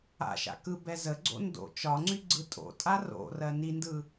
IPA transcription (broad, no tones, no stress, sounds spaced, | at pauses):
a̰ ʃ a̰ k ɯ b ɛ z ə ɡ͡ǀ o̰ n d o̰ t͡ʃ ɒ ŋ͡ǀ y ɡ͡ǀ ɯ tʼ o̰ tʼ a r o̰ r ɜ n i n d ɯ